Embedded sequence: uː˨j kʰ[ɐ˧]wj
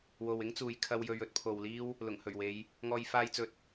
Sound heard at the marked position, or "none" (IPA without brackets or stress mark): ɐ˧